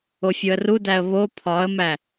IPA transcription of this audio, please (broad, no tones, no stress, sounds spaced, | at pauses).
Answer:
o fʲ o ə̯ r u d æ ə̯ β o pʰ ɒ ə̯ m æ